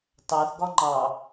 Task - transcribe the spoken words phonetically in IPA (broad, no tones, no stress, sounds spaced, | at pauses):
t ɑ θ ɡ ɒ ŋ͡ǃ ɑ